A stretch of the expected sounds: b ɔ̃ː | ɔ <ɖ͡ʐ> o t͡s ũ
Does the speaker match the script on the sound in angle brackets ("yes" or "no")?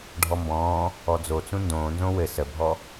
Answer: no